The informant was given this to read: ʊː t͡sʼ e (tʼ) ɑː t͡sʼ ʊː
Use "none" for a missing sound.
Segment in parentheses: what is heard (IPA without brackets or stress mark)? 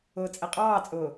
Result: qʼ